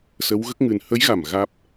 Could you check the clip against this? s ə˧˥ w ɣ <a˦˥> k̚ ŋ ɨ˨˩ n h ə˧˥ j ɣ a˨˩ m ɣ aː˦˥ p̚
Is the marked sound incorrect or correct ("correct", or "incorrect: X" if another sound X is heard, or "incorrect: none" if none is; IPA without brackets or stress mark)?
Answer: incorrect: ə˦˥